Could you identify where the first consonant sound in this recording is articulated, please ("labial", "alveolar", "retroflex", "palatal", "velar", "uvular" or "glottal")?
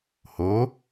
glottal